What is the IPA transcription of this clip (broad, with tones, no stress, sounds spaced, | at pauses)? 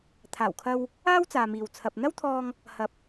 t̪ʰ aː˨˩ w kʰ ɐ˧ w | aː˥ w t͡s aː˨ m iː˨ w t͡sʰ ɐ˨ p̚ n̪ ɐ˥ w t̪ʰ ɔː˧ ŋ | h ɐ˨˥ p̚